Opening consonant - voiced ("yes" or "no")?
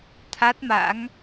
no